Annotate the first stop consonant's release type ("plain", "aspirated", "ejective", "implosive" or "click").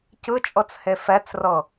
plain